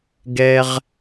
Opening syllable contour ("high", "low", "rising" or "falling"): high